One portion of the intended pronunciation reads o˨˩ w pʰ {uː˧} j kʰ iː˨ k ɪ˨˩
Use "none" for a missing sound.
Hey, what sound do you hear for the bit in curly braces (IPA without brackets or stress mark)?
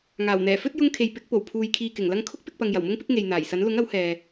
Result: uː˨